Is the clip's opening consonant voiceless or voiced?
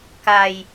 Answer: voiceless